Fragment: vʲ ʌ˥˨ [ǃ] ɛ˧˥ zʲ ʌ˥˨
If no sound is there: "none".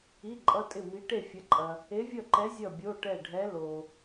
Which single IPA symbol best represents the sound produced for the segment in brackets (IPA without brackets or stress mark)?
ǃ